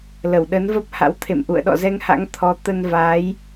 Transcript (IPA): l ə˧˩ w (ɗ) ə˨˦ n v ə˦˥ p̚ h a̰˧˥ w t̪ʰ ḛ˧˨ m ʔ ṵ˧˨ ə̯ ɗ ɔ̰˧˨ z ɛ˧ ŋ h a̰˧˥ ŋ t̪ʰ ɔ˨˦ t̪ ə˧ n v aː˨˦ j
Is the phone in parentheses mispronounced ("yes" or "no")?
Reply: no